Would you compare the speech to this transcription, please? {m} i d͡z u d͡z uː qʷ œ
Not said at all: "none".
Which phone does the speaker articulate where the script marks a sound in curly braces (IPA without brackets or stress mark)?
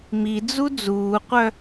m